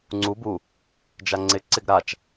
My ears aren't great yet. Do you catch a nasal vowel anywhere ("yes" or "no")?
no